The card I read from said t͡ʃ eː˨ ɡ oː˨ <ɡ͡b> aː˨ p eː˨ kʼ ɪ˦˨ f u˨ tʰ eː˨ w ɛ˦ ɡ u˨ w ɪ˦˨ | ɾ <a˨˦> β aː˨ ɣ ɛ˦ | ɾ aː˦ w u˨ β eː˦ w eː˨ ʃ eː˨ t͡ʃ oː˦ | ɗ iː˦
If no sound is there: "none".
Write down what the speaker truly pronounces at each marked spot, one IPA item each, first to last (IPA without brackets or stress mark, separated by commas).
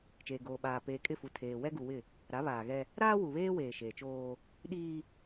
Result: ɓ, a˨˦